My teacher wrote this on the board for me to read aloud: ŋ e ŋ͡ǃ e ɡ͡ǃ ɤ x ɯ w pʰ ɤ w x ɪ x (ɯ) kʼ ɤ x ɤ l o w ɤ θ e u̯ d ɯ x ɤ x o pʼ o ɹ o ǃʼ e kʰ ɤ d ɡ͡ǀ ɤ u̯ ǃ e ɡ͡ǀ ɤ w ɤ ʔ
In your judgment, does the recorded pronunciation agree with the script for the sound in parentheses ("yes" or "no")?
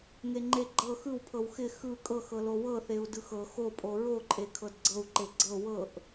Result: yes